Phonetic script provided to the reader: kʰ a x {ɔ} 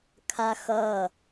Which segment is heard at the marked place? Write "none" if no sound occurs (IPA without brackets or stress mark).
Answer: ʌ